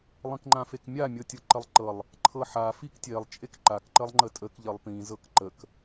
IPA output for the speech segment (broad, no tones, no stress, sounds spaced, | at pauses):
lˠ ĩ k ŋ͡ǃ ã f e k mʲ a mʲ ɤ tʲ ɤ ǃ ə lˠ ǃ ɤ lˠ | ǃʰ ɤ ħ a f i k tʲ e lˠ t͡ʃʼ e k ǃ a k ǃ ə lˠ ŋ͡ǃ ə tʼ ə k ʎ ə lˠ p ĩ z ɤ k ǃ ə k